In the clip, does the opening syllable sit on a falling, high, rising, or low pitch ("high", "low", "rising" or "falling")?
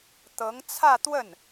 rising